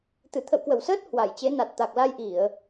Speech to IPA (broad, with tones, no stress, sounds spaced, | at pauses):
t̪ ɨ˧˩ t̪ʰ ə̰˧˨ w k w ə˧˩ w s əː˦˥ t̚ h w a˧˩ j t͡ɕ e˨˦ n a˨˩ t̚ t̪ a˨˩ k̚ l a˧ j ʔ i˧˩˨ ə̯